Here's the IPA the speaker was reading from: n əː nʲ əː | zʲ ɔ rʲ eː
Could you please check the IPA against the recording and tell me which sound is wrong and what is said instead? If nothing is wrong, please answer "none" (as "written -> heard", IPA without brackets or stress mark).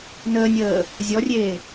none